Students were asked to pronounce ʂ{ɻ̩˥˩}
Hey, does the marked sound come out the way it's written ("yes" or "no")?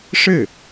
yes